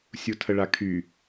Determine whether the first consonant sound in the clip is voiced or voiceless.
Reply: voiceless